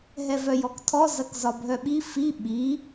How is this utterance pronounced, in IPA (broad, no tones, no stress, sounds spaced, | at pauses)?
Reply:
ɦ ɛ v œ j ɔ k tʰ ɔ z ɐ k z ɒ bʱ œ ɓ i f i ɓ i